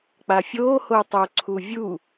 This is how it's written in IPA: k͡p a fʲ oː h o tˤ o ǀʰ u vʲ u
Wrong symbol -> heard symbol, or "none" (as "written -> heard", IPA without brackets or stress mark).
none